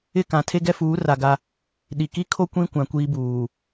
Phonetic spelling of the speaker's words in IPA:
ɪ˦˨ k ã˨ tʰ e˦ ɡ ɛ˦ f uː˨˦ r a˨ ɡ a˦ | ɗ i˨ k i˦ kʰ o˦ kʷ ĩ˦ kʷ ã˨ kʷ iː˦ b uː˨

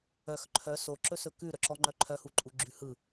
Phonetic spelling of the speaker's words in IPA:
œ x ǃʰ œ s o ǁ ɵ s ɵ k ʉ ɾ œ ǁ ɔ ŋ͡ǃ œ ǃʰ œ h u ǃʼ u ɡ͡ǁ ʉ h ɯ

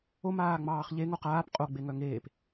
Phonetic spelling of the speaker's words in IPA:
o m aː ŋ͡m ɑː χ ʎ e ŋ o q aː p qʼ o ɡ͡b e ŋ œ ŋ eː p

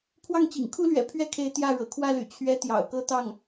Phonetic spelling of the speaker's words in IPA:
pʰ w ɑ˥˩ ŋ t͡ɕ ḭ˨˩ ŋ kʰ u˥ l ɥ ɛ̰˨˩ pʰ ɥ ɛ˥ kʰ e˧˥ ɪ̯ t̪ j ä˥˩ ɻ ɤ̰˨˩ kʰ w ä˥˩ l y̰˨˩ t͡ɕʰ ɥ ɛ˧˥ t̪ j ɑ̰˨˩ ʊ̯ k ɤ˥ t̪ ɑ˥˩ ŋ

